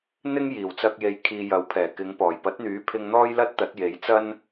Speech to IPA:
n̪ ɪ˥ ŋ j iː˨˩ w t͡s ɐ˧ k̚ j e˨ j kʰ iː˨ j ɐ˨˥ w pʰ ɛː˨˩ k ɪ˨˧ ŋ p ɔː˨˩ j p ɐ˨˥ t̚ n̪ yː˨˥ pʰ ɪ˧ ŋ n̪ ɔː˥ j l ɐ˥ t̚ t̪ ɐ˨˥ t̚ j e˨˥ j t͡s ɐ˥ n

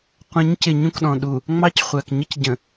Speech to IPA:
qʷ ə̃˨˦ ɲ c ɪ˨ ɲ ũ˦ k ɗ ɔ̃˨ ɗ u˨ | ŋ͡m ɑ˦ c χʷ æ˨ k ɲ ə˦ c ɟ ə̃˨

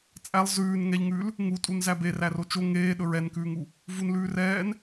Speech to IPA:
t͡sʼ æ lˠ z ʉː n ŋ ɛ ʎ ŋ ʉː l | ŋ u tʼ u n z æ b e r æ r o t͡ʃ o ŋ eː ɗ ɵ ɹ ɛ n k ʉː ŋ u | v u n l ʉː r ɛː n

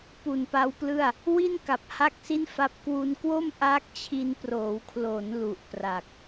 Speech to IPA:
p u˨˩ n p a˦˥ w p l ɯ˥˩ a̯ | w i˥˩ n k a˨˩ p̚ h a˥˩ k̚ s i˥˩ n f a˦˥ p̚ k w u˧ n k w o˥˩ m ʔ aː˦˥ k̚ t͡ɕʰ i˧ n p r oː˩˦ w kʰ l o˩˦ n l u˨˩ ʔ p r a˨˩ k̚

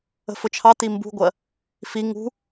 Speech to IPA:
ə̤ f ʊ t͡ʃʰ ɑ t i m b ṳ ɡʷ ɜ | f i ŋ ṳ

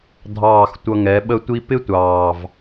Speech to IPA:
dʱ ɑː˦˨ x tʷ ʌ˧ ŋ ɛ˨˦ ɓ ə˧ tʷ i˧ p ɪ˦ tʷ ɑː˨ v

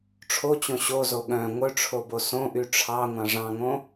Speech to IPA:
ʈ͡ʂʰ o t͡ɕ õ ɕ o z o ɠ œ̃ ŋʷ œ ʈ͡ʂʰ o b o s õ ʔ y ʈ͡ʂʰ ɑ ŋʷ ɑ̃ ʐ ɑ̃ ŋ õ

